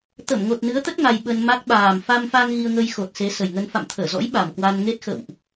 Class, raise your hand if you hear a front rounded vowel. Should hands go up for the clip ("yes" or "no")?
no